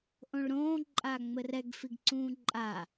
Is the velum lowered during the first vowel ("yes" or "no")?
yes